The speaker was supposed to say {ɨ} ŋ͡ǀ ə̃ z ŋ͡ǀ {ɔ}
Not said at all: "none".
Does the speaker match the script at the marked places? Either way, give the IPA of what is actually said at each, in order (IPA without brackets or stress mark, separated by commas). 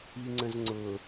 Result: i, ʊ